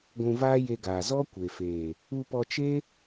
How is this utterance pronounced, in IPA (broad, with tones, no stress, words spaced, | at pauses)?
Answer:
ɡʷũ˧vaː˦je˧ɡaː˨ zɔ˦kʷe˨ feː˨ | u˧pɔ˧t͡ʃe˦